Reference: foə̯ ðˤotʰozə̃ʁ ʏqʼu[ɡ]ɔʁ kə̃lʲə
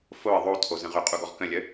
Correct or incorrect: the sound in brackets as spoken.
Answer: correct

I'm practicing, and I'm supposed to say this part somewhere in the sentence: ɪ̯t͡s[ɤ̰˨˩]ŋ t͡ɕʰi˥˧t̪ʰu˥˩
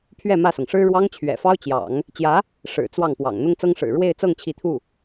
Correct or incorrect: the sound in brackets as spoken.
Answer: incorrect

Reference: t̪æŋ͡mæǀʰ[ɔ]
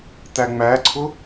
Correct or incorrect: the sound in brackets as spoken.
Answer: incorrect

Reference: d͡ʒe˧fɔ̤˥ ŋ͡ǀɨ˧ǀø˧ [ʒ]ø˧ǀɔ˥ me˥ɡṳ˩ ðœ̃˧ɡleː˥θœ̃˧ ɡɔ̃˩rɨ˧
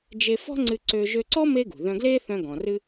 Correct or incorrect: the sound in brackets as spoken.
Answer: correct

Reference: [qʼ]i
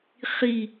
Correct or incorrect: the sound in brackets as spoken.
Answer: incorrect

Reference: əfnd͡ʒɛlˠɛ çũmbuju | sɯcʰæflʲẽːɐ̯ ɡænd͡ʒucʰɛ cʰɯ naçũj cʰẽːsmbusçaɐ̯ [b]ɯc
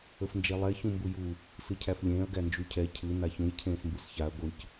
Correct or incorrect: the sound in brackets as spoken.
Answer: incorrect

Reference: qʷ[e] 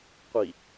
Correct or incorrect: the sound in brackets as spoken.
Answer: incorrect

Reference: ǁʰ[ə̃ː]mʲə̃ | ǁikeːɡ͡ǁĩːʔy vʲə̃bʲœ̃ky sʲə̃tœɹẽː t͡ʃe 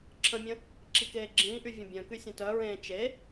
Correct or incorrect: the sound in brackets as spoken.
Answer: incorrect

